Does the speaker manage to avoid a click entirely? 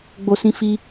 yes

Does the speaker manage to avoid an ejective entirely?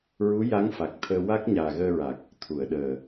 yes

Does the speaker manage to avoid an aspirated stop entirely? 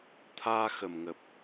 no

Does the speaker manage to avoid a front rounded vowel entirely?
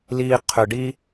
no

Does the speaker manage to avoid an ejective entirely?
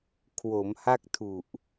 yes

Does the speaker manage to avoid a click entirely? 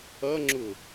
no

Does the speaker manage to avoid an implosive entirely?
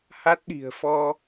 no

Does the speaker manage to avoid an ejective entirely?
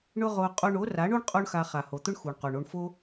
no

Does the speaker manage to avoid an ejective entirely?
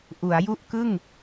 yes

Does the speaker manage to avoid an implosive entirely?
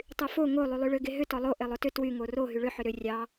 yes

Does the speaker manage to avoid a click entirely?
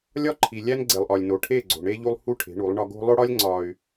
no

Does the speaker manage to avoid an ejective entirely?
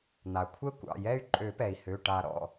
no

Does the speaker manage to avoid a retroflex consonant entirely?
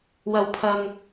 yes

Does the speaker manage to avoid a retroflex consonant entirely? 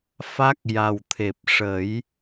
no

